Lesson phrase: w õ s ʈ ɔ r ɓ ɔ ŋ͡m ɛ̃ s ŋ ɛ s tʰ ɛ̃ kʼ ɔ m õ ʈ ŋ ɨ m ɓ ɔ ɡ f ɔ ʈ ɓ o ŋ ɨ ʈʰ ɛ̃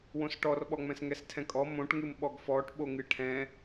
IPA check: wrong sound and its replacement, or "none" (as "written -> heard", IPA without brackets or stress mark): none